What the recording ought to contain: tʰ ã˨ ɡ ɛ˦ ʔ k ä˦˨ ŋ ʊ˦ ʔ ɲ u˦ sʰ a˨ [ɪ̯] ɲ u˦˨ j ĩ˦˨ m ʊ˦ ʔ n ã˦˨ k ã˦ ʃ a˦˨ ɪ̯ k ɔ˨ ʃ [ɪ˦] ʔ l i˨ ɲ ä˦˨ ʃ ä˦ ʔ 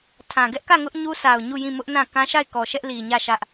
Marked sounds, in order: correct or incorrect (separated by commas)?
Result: incorrect, incorrect